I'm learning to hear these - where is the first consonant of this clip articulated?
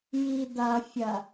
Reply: palate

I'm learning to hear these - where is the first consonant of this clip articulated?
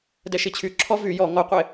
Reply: tongue tip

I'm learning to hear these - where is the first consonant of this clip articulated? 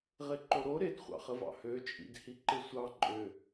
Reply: uvula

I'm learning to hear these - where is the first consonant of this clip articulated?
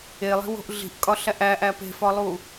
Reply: tongue tip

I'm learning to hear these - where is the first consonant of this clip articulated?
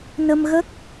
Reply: tongue tip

